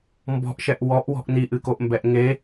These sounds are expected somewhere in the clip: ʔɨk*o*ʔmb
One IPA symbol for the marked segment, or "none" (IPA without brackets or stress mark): o